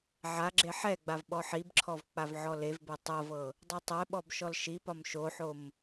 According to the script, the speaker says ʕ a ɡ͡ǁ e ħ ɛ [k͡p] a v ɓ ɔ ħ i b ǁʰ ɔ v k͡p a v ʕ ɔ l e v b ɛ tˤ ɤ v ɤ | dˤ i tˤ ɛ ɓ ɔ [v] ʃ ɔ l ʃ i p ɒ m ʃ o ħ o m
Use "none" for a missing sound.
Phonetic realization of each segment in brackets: ɡ͡b, b

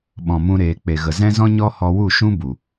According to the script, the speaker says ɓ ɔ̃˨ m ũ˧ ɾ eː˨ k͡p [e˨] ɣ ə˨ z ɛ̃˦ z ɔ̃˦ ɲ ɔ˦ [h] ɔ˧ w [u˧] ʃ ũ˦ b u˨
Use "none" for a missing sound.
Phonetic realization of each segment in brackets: e˨, h, u˦˨

